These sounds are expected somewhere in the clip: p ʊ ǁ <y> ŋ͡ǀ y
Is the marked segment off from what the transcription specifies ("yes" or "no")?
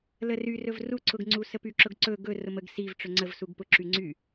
no